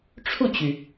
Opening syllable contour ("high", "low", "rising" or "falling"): falling